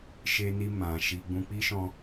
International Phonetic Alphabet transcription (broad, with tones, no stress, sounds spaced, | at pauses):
ʃ e˧ n i˧ m ã˨ ʃ i˧ ɡ͡b ũ˦ k͡p i˦ ʃ ɔ̃˧